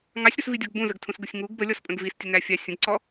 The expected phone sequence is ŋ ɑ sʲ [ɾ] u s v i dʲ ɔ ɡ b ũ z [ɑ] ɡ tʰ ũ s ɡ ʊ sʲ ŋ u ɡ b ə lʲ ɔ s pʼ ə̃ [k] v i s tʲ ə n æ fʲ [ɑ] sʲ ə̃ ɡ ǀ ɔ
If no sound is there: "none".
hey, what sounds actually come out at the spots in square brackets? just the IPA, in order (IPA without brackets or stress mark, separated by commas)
ɾ, ə, ɡ, ɑ